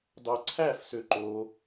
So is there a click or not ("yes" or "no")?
yes